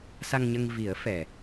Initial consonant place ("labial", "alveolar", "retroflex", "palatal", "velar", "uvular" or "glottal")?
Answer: alveolar